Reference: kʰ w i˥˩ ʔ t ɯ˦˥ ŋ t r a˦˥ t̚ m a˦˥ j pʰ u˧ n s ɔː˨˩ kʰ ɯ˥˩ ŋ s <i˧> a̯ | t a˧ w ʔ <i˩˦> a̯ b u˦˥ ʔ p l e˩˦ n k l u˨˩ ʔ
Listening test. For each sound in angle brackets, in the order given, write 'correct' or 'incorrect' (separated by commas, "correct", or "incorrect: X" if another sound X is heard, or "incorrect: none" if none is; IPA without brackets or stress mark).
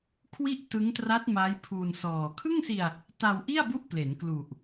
correct, incorrect: i˥˩